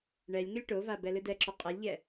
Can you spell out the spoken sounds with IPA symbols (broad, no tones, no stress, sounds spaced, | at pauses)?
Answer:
ɳ ɛ lʲ ŋ ɘ lʲ ʈ o v a b ɛ l ɨ d ɛ ǁ o qʼ ɘ lʲ ʎ ɛ